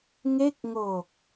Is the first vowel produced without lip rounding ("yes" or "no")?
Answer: yes